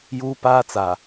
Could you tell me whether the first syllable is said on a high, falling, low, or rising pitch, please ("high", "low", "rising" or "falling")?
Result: high